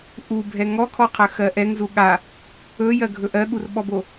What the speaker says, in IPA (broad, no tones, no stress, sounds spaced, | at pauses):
ʔ u bʱ ɛ ŋ ɔ kʰ ɔ qʰ ɜ x ɜ ʔ ɛ ŋ z u ɠ a | ɵ j ɜ ɡʱ ɵ ʔ ɜ ɠ u r ɓ ɔ b o